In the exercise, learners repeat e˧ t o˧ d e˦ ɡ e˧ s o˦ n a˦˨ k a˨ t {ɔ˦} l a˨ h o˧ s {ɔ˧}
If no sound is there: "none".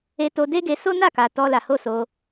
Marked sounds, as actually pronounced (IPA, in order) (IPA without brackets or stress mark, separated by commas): ɔ˧, o˧